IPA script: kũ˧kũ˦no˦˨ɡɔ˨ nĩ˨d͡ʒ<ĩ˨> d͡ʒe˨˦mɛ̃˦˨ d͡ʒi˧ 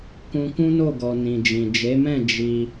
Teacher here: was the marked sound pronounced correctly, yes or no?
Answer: yes